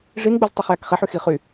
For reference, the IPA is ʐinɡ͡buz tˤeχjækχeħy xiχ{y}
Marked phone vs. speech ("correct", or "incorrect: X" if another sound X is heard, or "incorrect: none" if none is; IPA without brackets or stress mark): correct